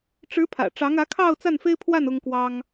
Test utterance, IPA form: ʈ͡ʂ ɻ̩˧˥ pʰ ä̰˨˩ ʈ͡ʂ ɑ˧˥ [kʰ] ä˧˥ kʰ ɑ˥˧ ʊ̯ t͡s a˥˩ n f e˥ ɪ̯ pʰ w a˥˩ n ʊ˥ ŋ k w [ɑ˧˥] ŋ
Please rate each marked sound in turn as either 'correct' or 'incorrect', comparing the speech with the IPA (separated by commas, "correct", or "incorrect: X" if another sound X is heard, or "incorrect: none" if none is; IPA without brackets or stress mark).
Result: incorrect: ŋ, incorrect: ɑ˥